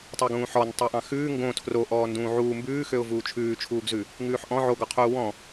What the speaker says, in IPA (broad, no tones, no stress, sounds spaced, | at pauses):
tˤ o ɡ ũː ħ ɔ n tˤ o ʔ ɑ̃ x ʉː ŋ ɡ õ tʰ r o ʔ ɔː n d ũː ʕ uː m b ʉː x ø ʊ̯ v uː t͡ʃʰ ʉː t͡ʃʰ uː ɡ z ʉ | ŋ ʉː ħ ʔ ɔ̃ ʕ o ɡ ɔ qʰ uː w ɔ̃